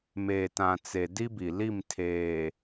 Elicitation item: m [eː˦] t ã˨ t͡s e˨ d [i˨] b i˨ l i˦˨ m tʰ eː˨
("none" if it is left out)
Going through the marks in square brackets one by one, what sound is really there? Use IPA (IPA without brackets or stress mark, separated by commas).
eː˨, i˦